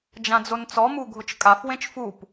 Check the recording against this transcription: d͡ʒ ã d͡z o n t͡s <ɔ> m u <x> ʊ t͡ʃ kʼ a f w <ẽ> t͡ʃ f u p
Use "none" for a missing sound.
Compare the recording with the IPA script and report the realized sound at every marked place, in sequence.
ɔ, ɡʱ, ẽ

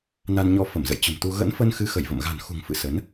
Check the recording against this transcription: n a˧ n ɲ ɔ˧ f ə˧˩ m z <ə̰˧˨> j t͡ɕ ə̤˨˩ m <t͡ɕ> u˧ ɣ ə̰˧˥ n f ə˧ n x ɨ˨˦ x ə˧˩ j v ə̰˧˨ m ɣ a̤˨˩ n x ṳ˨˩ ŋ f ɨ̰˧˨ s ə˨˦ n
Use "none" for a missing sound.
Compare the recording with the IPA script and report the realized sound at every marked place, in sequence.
ə̰˧˨, t̪

